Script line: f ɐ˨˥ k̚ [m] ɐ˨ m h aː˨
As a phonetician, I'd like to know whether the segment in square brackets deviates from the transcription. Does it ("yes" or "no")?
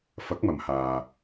no